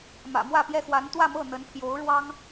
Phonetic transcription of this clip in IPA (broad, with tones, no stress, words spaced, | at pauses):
mä̰˨˩mwä˥˩pjɛ˥xwa˧˥n t̪wä˥˧mɤ˥˩ n̪ə˧˥npʰjo˧˥ʊ̯ɻwɑ˥ŋ